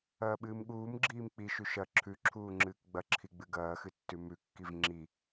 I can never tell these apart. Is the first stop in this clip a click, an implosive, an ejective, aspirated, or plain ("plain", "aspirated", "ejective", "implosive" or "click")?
implosive